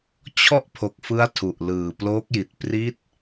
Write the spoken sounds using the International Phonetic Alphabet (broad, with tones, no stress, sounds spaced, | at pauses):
t͡ɕʰ ɔ˥˩ ʔ pʰ o˨˩ k̚ f ɯ˦˥ a̯ tʰ u˨˩ ʔ l ɯː˨˩ p l oː˦˥ k̚ j i˨˩ t̚ p r i˦˥ t̚